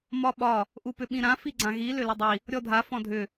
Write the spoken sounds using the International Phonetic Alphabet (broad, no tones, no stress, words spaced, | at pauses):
mɒɓɒ | ʔupʏɓĩɾã fiɡ͡ǀãɣi lʏlʏdˤi | ɾʲɔdʱa fɔ̃dʱʏ